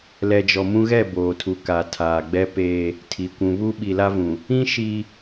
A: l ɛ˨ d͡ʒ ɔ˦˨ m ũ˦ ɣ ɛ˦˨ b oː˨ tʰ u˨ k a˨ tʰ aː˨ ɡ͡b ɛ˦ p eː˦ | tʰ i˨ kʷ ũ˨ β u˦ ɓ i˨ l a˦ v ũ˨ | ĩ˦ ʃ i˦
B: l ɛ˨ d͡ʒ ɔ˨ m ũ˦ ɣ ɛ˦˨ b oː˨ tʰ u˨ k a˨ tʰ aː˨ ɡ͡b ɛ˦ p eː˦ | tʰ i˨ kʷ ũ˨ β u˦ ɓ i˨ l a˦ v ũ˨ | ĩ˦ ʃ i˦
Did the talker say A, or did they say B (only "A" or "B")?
B